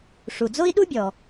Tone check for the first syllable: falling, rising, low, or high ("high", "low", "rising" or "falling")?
low